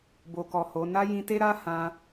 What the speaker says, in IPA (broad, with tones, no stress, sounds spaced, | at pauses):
b o˨ k ɔ˨ h o˨˦ n a˦ j ĩ˧ t e˦ ɾ a˦ h ã˧